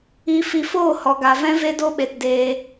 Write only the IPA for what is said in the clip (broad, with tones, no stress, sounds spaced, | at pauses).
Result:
i˧ f i˧ f oː˦˨ h ɔ˨ ɡ a˨ v ɛ̃˦ v e˦ d o˦ ɓ e˨ t d eː˧